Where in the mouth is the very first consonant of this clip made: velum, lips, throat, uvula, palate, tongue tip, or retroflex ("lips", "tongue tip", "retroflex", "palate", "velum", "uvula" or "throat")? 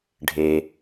retroflex